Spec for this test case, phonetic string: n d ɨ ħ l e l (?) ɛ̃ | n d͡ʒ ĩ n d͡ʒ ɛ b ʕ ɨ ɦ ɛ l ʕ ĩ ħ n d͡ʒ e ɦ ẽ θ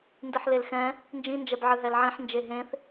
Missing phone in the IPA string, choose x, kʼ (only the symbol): x